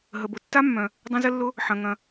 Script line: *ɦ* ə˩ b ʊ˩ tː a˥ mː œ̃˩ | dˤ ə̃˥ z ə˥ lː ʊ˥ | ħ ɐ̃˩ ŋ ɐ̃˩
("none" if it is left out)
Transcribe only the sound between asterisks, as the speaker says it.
ɦ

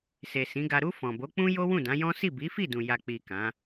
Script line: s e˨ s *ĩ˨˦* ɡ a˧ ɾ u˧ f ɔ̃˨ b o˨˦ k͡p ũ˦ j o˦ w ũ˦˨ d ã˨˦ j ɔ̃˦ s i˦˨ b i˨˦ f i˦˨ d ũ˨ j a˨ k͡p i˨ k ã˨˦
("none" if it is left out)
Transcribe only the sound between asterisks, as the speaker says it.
ĩ˨˦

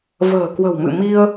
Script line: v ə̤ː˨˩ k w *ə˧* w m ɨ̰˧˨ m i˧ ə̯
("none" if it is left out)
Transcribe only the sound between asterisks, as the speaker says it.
ə̤˨˩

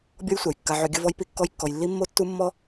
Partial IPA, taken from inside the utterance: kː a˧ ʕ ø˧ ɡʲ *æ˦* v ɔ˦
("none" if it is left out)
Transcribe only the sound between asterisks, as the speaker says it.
ə˦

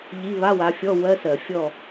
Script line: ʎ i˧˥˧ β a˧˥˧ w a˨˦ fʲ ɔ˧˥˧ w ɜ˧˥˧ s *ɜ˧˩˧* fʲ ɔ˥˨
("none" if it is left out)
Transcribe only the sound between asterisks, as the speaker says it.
ɜ˧˩˧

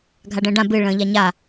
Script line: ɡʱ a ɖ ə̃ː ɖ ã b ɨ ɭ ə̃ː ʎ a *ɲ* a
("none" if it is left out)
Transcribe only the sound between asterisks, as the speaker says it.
ɲ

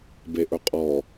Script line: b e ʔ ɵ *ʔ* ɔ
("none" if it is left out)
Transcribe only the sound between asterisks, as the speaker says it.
qʼ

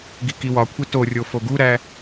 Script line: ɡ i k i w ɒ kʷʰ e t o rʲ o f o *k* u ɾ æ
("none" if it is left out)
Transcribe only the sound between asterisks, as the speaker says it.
ɡ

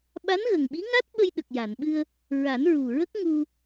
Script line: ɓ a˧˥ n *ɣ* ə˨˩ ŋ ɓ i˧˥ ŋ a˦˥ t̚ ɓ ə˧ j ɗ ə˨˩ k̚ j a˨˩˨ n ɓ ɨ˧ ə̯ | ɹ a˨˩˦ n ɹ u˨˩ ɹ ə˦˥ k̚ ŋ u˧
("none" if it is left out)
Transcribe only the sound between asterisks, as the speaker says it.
ɣ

